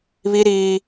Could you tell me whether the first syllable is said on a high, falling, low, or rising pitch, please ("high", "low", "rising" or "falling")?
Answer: high